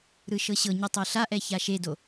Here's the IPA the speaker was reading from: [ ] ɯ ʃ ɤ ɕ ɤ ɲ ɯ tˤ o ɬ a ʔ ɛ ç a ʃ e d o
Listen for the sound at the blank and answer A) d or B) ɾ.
B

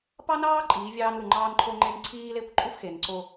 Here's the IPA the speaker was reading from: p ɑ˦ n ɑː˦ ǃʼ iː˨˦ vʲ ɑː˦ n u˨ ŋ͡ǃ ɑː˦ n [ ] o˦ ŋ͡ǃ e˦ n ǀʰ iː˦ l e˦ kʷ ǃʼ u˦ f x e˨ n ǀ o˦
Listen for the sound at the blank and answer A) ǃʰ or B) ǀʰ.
A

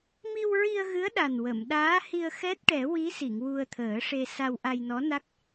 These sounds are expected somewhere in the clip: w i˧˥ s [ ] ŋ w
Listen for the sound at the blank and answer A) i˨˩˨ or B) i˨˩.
A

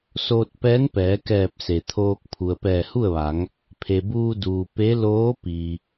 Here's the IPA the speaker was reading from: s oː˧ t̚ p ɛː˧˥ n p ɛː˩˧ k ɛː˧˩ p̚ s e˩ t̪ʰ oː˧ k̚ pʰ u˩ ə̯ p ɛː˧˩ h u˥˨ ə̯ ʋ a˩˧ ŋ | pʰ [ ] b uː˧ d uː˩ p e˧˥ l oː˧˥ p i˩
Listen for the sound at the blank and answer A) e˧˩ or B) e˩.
B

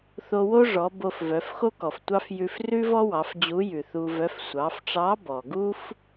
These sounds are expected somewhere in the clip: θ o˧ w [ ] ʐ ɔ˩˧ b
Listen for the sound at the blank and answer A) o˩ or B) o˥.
B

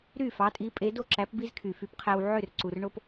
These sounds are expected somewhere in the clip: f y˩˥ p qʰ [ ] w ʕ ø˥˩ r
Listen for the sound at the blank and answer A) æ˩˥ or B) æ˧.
B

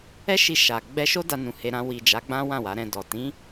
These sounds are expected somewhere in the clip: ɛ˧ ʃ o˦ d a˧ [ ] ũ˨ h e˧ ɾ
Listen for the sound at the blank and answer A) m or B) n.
B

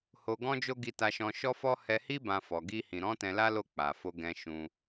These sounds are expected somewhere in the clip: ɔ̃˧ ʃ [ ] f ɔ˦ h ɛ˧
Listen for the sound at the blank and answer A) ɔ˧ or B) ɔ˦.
B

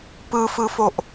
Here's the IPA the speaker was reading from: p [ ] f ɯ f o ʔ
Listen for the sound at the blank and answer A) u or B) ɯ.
B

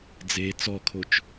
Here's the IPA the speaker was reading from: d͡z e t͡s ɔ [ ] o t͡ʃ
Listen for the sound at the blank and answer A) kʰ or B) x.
A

